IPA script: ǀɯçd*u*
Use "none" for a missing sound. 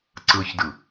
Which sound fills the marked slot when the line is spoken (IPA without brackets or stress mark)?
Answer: ɯ